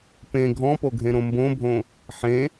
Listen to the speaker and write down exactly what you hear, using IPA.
p ẽ ɡʱ ɔ̃ p o ɡʱ ẽ ɾ õ m b õ bʱ õ | ħ ẽ

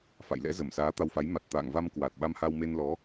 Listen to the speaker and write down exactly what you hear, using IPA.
f a̰˧˨ j l ɛ̰˧˥ z ə˧˩ m s aː˨˦ t̪ a˧ w f a˨˦ j m a˨˩ t̚ t̪ a̰ː˧˨ ŋ v a˧ m k w a˨˩ t̚ ɓ a˧ m h a˧ w m e˧ n l ɔ˨˦

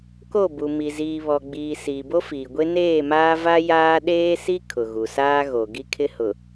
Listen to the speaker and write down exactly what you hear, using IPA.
k o˦˨ b u˨ m i˨ z iː˨ β ɔ˨ ɡ͡b iː˨ s iː˨ b o˦ f iː˨ ɡʷ e˦ n eː˦˨ m aː˦ v a˦ j aː˦ ɗ eː˦ s i˦ kʰ ʊ˨ ɣ u˨ s aː˦ ɣ o˨ ɡ i˦ kʰ ɪ˦ h ʊ˨

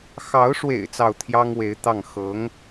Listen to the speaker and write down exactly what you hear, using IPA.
x ɑ˧˥ ʊ̯ ʂ w ḛ˨˩ ɪ̯ t͡s ɑ˥˩ ʊ̯ t̪ʰ j ɑ˥ ŋ w e˧˥ ɪ̯ t̪ ɑ˥˩ ŋ x ɤ˧˥ ŋ

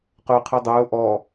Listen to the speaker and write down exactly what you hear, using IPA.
q ʊː qʰ ɯ dˤ ʊː ʔ ɔ

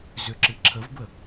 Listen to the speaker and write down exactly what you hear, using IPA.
z ʏ ǁ ɨ ǁʰ ə v b ə

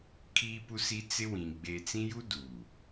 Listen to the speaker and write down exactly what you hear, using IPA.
kʰ iː˦ p u˦ s i˦ t͡s ɪ˦ w ĩ˨ ɡ͡b eː˨ t͡s ĩ˦ j u˦ d uː˨

